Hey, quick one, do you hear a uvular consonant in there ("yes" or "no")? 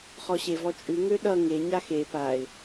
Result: yes